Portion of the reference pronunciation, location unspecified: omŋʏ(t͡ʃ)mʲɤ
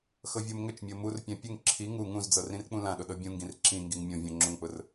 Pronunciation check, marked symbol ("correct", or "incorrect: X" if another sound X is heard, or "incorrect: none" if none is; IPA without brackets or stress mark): correct